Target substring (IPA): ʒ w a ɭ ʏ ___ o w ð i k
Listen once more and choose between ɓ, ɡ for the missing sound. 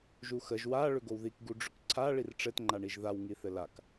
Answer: ɡ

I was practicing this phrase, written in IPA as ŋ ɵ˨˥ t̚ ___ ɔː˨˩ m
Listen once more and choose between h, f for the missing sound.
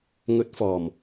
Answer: f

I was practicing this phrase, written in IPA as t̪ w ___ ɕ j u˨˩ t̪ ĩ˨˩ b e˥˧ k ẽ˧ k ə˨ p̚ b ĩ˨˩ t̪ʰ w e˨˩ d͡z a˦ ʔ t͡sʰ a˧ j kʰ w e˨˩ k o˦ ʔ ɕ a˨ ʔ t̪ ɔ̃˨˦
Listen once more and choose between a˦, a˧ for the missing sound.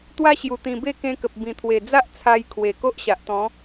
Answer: a˦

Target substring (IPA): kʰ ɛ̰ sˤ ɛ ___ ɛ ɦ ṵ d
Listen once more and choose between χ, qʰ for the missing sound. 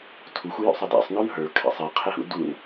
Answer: qʰ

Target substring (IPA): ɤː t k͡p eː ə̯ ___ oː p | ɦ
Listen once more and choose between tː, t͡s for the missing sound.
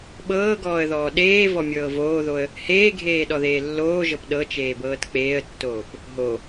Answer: tː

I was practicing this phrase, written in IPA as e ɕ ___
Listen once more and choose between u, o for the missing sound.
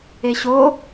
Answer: o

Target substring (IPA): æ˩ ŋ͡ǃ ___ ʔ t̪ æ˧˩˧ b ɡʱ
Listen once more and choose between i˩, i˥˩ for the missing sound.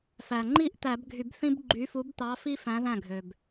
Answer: i˥˩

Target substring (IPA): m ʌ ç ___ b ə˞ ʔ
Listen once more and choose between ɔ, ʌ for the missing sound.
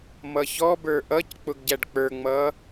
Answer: ɔ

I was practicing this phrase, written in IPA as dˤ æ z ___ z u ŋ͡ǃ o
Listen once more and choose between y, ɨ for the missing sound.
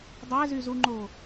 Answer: y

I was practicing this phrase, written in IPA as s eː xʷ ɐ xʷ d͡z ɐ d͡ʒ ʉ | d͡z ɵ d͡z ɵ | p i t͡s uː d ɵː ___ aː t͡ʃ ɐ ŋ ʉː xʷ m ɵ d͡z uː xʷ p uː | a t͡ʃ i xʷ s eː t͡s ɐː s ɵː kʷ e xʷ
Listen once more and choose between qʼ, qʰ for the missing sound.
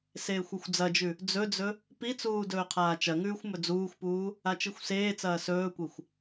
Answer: qʰ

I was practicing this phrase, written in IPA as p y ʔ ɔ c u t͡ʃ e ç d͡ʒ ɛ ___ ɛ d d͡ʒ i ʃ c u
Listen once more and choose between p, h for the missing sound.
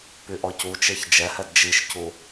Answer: h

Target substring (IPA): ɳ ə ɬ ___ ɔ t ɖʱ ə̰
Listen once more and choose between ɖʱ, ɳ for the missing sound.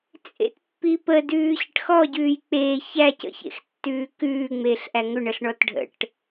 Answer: ɳ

